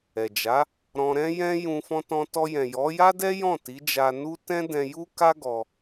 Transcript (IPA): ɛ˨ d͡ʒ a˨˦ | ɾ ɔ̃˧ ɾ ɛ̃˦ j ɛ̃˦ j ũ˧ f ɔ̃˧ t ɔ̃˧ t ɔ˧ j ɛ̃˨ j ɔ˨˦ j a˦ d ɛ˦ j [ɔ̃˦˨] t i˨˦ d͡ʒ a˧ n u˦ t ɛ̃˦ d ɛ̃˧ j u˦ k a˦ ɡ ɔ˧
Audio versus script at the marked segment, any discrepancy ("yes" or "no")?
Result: no